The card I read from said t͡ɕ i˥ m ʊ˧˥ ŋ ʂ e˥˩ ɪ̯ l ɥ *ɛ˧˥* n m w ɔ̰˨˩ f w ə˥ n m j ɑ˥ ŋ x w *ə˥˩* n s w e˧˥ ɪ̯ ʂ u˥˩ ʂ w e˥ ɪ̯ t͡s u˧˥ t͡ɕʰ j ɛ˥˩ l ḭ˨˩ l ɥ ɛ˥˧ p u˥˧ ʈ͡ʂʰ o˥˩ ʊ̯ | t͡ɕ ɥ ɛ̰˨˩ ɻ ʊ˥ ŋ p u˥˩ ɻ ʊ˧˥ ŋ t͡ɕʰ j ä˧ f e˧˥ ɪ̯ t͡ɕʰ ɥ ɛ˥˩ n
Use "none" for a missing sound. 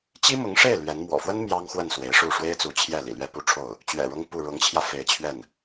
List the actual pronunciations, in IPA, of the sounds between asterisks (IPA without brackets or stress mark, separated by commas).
ɛ˧˥, ə˥˩